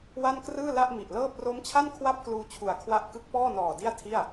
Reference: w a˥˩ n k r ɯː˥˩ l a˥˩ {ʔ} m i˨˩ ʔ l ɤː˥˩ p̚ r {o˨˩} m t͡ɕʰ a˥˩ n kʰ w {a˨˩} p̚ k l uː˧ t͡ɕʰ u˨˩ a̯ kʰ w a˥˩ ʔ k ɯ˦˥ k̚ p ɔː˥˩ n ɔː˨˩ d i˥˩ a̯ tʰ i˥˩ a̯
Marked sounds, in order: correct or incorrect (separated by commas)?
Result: correct, incorrect, incorrect